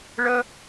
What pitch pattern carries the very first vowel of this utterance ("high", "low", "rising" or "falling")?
high